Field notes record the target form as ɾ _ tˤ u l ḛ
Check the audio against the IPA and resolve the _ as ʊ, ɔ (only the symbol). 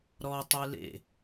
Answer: ɔ